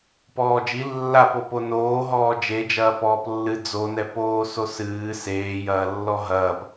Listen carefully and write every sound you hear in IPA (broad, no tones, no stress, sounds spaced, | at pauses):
p ɔː d͡ʒ i lː a p o p o n oː ɦ ɔː d͡ʒ e d͡ʒ ɐː p ɔː p lː ɨ d͡z o n ɛ p oː s o s ɨː s eː j ɐː lː ɔ ɦ ɐː p